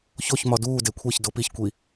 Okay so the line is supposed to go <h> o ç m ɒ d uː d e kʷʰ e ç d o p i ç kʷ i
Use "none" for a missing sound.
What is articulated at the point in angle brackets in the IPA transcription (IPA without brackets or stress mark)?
ç